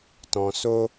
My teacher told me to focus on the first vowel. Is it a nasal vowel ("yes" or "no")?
yes